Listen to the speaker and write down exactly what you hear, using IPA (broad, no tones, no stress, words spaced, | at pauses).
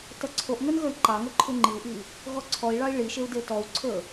tʌǀʰoʔŋə˞n ɣə˞i̯ǃɑŋʌ ǃʰuŋ͡ǃiu̯ʔi | ɣɔǀʰɔi̯ɭɑi̯ ɭiʃeu̯ detɔu̯ǀʰə˞